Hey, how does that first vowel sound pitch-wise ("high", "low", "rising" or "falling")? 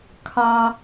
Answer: high